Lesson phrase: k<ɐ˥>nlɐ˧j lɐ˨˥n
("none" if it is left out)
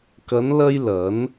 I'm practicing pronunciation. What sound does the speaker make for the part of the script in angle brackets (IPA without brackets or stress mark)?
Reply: ɐ˨˧